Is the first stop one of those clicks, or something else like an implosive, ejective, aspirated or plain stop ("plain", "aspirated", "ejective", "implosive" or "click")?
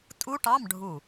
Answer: ejective